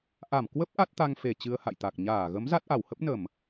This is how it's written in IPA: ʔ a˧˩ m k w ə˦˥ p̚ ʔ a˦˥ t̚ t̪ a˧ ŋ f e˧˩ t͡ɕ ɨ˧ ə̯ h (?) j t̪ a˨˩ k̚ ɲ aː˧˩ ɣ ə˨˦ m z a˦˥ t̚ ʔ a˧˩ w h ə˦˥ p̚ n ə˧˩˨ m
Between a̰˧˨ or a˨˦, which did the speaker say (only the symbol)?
a̰˧˨